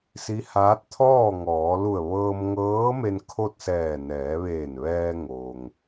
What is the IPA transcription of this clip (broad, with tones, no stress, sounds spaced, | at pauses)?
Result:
s i˧˥ h aː˧˥ t̚ t̪ʰ ɔː˥˨ ŋ ɔː˩˧ l u˧˩ ə̯ ʋ ɤː˧ m ŋ ɤː˧˥ m e˧ n kʰ o˥˨ t̚ s ɛː˧˩ n ɛː˩˧ ʋ eː˧˩ n ʋ ɛː˧ ŋ o˩ ŋ